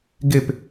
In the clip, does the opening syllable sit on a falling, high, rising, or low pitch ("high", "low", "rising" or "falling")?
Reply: falling